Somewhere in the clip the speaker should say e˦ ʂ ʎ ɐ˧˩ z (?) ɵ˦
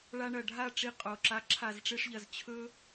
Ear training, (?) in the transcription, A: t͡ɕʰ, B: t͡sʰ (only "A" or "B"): A